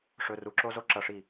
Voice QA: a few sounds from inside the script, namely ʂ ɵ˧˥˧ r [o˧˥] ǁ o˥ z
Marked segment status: incorrect: u˧˥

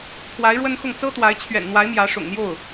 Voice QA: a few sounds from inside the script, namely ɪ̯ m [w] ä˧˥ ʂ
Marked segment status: incorrect: j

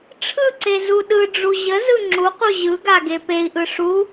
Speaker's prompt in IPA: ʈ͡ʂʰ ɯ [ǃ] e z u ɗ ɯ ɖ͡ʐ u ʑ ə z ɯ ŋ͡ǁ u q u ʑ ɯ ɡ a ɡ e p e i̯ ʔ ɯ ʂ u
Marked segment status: incorrect: ǀ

